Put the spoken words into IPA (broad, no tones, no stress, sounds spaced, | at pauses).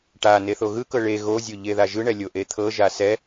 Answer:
ʈ a n e θ o ɣ ɯ k ɤ ɭ e ɣ o zʲ o ʎ e ð a ʒ ɯ ɳ ɛ lʲ o ʔ e t̪ʰ ɤ ʒ a s ɛ